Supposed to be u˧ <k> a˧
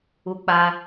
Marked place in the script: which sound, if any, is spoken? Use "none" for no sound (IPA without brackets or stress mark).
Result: k͡p